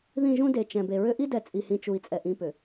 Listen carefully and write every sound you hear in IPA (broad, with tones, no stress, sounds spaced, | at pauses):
ð ĩ˦˨ ʒ ũ˦ d e˨ t͡ʃ ɛ̃˨ b e˨ ɹ ʏ˦ ʔ i˦ d ɛ˨ t͡sʼ i˨ h ĩ˨ t͡ʃ u˨ i̯ t͡sʼ ɛ˨ ʔ ĩ˦ p ʏ˨